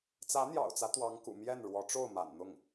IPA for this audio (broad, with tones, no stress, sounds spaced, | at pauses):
t͡s ä˧˥ n̪ j ɑ̰˨˩ ʊ̯ t͡s ä˦ t̪ w ɑ˧˥ ŋ k ṵ˨˩ m j ɛ˥˩ n ɻ w ɔ˧˥ ʈ͡ʂ o˥˩ ʊ̯ m a̰˨˩ n n̪ ʊ˥˩ ŋ